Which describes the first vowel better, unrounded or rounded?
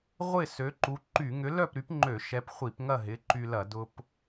unrounded